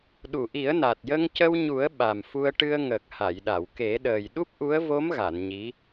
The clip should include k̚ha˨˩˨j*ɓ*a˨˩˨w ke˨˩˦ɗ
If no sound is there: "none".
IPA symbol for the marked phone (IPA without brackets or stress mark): ɗ